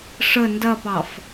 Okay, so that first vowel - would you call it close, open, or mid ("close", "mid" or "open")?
mid